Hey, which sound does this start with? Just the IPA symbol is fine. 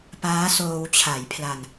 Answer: p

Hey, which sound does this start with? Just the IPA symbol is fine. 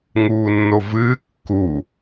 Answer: ŋ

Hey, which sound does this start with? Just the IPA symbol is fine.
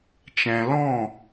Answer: t͡ʃ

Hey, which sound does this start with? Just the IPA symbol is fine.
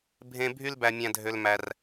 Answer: bʱ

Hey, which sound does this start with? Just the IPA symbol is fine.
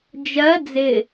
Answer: d͡ʒ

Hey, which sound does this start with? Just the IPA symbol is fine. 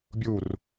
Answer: bʲ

